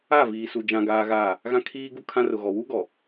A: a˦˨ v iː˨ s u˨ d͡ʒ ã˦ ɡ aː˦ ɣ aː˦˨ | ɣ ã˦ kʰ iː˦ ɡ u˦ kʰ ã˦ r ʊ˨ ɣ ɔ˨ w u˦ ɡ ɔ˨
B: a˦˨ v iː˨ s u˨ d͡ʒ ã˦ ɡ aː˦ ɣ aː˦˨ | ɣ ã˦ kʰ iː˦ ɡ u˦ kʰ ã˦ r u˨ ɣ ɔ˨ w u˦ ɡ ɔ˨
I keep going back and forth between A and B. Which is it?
A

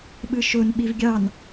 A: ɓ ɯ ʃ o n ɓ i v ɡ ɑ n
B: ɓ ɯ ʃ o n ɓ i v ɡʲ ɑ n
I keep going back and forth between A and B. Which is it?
B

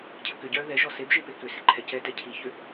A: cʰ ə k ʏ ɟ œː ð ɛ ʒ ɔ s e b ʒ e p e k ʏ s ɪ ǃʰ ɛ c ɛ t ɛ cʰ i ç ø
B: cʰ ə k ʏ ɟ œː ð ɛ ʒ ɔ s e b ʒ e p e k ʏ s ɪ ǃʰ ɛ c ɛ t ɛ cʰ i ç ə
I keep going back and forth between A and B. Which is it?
A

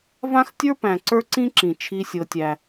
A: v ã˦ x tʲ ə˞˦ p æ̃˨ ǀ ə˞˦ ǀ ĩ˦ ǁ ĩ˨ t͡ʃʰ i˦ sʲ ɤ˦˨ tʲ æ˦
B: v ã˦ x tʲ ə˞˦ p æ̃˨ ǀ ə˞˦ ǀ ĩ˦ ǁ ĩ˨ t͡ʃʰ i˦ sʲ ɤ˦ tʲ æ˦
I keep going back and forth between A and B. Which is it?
B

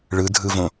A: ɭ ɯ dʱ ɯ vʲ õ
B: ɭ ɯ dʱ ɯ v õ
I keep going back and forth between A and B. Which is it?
B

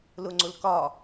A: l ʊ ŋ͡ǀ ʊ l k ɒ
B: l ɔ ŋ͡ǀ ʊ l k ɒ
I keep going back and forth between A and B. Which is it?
A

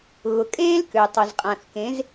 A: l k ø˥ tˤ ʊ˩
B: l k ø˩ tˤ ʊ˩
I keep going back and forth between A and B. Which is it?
B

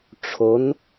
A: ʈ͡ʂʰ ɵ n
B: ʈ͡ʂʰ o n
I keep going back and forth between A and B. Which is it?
B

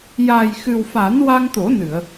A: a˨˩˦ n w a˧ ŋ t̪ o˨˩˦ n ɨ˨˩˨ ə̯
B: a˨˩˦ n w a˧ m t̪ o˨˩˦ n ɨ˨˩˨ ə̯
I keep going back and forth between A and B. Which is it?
A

